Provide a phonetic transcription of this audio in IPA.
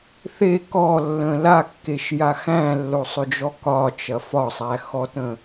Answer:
θ e k ɔ lː ə̃ l a kː e ʃ j a x æ̃ lː o sˤ ʏ d͡ʒ ɔ k ɒ t͡ʃ ɐ f ɒ sˤ æ x ɔ t ə̃

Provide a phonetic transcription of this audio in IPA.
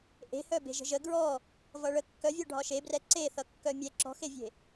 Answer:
ʔ e̤ h œ b e̤ ʒ ə̤ ʒ ə ɡ ɹ ɔ | v ʌ ɭ ə kː œ vʲ œ ɖʱ ɒ ʃ e b r ɛ ǀ e θ ʌ kː œ mʲ ɛ ǁ ɔ̤ x e vʲ e̤

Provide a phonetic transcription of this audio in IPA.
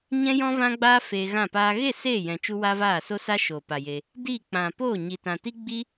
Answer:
ɲ ɛ̃˦ j ɔ̃˦ v ã˦ ɡ͡b aː˦ f eː˧ ɣ ã˦˨ p aː˦ ɣ e˦˨ s eː˦˨ j ɛ̃˨ t͡ʃ u˦ w aː˦ v aː˦˨ s o˦ s a˦ ʃ oː˨ p a˨ j e˧ | d iː˦˨ k͡p ã˨ p o˦˨ ɲ i˨ t ã˨ t i˦ ɡ͡b i˦

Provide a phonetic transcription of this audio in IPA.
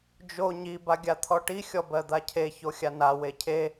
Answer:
d͡ʒ o ɲ i b a ɡʲ a t̪ʰ ɔ ʈ i xʲ ɔ b ɜ d̪ a cʰ e ç o xʲ a n a w e cʰ e

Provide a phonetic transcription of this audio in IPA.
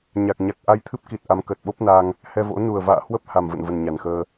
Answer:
ɲ a˨˩ k̚ ɲ a˨˩ k̚ ʔ a˧ j t̪ʰ ɨ˦˥ p̚ k i˨˩ t̚ ʔ a˨˦ m k əː˨˩ t̚ ɓ o˦˥ p̚ n aː˧ ŋ | h ɛ˧ v o̰˧˥ n u˨˩ ə̯ v a̰ː˧˨ h w ə˦˥ p̚ h a˨˩ m v ə̰˧˨ n v ə˨˩ n ɲ a˨˩ n x əː˧

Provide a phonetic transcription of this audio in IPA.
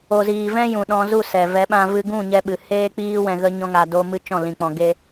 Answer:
o˨ z iː˨ v ɛ̃˦ j ũ˨ ɗ ɔ̃˧ z u˦˨ s ɛ˨ v ɛ˨˦ ɓ ã˧ v ɨ˧ ɡ ũ˦˨ ɲ ɛ˧ ɓ ɨ˨ h eː˦ k͡p iː˦ w ɛ̃˧ ɣ ə˦ ɲ ɔ̃˦ ŋ a˧ d o˦ m ɨ˦ t͡ʃ ɔ̃˦˨ l ĩ˧ k͡p ɔ̃˧ ɡ e˦

